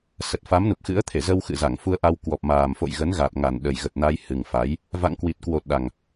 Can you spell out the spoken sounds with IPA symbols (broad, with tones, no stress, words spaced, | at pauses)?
sə˨˩t̚fa˨˦m nu˨˩p̚xɨ̰˧˥ə̯t̪ʰe˧˩ zə˧w xɨ̰˧˨za˧˩ŋ fu˧ə̯ʔa˧w kwɔ˨˩p̚maː˨˩mfo̰˧˨j ɣə˨˦nɣa˨˩t̚ŋa˨˩n ɗə˨˩jɣə˨˩t̚na˧jhɨ˨˩ŋ fa˨˦j | va̰˧˨ŋkwi˨˩t̚ kwo˨˩t̚ ɗa˨˩ŋ